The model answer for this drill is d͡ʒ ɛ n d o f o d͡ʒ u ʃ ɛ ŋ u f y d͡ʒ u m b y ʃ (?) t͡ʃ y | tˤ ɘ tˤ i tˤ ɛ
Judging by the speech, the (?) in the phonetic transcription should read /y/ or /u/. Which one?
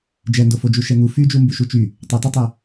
u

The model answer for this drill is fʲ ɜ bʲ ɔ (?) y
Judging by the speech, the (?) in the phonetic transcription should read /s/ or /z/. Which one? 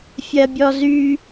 z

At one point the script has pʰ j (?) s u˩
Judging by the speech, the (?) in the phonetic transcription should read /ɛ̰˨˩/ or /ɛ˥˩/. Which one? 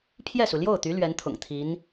ɛ˥˩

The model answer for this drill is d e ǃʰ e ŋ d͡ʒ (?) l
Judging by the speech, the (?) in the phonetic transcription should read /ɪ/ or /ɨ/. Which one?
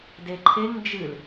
ɨ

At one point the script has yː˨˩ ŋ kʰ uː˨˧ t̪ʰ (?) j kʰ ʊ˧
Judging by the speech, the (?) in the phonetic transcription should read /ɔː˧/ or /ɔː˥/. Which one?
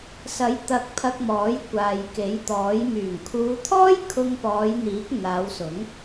ɔː˥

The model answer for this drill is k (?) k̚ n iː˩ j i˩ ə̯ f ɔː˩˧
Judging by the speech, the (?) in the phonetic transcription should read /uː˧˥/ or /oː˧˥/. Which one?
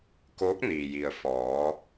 oː˧˥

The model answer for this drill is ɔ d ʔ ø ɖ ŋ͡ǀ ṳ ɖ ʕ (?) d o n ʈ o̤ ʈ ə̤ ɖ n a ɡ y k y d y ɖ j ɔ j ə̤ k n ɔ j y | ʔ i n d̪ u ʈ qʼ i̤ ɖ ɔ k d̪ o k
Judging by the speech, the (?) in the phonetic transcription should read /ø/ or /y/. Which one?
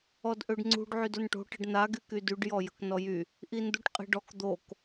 y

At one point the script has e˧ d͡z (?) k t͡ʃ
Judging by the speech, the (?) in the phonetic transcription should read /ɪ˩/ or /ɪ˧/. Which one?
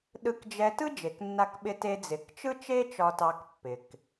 ɪ˩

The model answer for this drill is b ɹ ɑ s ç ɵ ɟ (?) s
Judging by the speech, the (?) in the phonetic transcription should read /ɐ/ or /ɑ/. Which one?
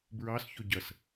ɐ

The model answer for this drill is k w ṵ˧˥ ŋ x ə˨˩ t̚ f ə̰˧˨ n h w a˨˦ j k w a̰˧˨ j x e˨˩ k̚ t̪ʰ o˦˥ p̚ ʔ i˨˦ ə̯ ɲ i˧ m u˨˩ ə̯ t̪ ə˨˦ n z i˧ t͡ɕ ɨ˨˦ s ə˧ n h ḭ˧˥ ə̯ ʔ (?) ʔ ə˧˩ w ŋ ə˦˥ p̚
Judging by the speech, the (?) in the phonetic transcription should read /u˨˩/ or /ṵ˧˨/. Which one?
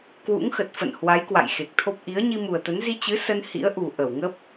u˨˩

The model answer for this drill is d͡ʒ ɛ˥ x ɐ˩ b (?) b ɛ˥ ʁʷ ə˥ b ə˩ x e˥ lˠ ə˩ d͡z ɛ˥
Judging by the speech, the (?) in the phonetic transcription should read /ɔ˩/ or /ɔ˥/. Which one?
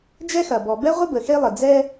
ɔ˩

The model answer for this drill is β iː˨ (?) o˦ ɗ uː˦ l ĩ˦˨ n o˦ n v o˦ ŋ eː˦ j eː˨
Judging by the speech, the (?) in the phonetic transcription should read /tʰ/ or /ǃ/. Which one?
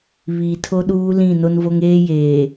tʰ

